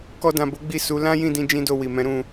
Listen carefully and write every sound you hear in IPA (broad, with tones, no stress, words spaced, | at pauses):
kɔ˧dã˨bo˨˦ ɡ͡bi˦˨su˨˦ lã˦jĩ˦˨dĩ˧ d͡ʒĩ˦do˦˨wi˨mɛ̃˨˦ ɾũ˦˨